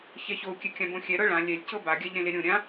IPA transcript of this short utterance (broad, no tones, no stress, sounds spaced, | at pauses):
ç ɛ ç o u̯ kʲ ɛ kʲ ã b õ xʲ ɛ ɾ ɤ ɭ ã lʲ ɛ lʲ c ɤ b a ɡʲ a ʎ ɾ ẽ l e ɾʲ õ ɾʲ ã